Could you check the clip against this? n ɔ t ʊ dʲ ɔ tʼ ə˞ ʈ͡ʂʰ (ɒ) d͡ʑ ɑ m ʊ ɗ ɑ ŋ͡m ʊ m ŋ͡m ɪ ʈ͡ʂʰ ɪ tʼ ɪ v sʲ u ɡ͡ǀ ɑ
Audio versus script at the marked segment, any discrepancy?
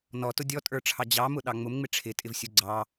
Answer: yes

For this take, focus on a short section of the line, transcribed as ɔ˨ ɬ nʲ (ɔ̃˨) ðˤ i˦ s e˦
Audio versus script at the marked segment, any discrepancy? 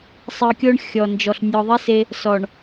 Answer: yes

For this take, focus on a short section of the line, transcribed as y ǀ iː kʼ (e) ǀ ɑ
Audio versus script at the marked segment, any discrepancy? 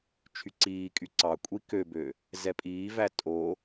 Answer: yes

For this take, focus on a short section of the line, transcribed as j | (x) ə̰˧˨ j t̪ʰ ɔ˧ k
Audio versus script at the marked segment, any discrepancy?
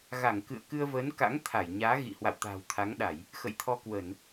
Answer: no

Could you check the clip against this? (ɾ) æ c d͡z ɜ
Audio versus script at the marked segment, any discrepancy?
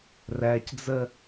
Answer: yes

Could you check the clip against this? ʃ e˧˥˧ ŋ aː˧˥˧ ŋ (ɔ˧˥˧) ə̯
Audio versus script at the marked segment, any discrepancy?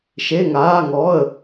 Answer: no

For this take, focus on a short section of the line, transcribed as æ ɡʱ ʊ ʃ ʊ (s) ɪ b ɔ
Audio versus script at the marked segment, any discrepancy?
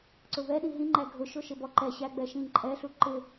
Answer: yes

